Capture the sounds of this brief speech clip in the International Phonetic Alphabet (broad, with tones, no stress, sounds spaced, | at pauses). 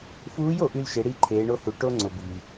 f uː˧˥ j o˩˧ ʔ y˧ l ʃ e˩˧ ɽ i˧ ǃʰ eː˩˧ ɳ o˧ h u˩ ʈ o˧ ŋ͡ǀ ʊ˩ b i˩